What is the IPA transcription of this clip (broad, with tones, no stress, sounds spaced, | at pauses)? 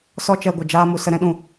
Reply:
s ɔ˧ t͡ʃ ɛ˨ ɡʷ ə˨ d͡ʒ aː˧ m u˧ s ə˧ ɾ ɛ̃˧ ɗ ũ˨